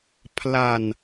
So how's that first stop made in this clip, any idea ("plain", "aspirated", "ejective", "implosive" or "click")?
aspirated